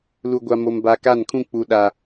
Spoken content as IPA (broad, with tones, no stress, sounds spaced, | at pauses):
l u˨ ɡʷ a˨ m o˨ m b a˨ k a˦˨ n kʰ ũ˦ k͡p u˨ ɗ a˨